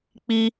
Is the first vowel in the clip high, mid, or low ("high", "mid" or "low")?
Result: high